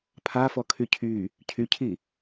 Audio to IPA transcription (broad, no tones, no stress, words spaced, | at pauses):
pʰafɔkʰy cʰy | cʰycʰi